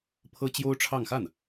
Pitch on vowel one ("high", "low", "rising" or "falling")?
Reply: high